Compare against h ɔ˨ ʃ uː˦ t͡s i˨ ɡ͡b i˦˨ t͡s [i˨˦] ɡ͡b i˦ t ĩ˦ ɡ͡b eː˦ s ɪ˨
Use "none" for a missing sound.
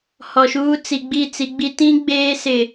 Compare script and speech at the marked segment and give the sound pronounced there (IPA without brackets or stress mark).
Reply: i˨˦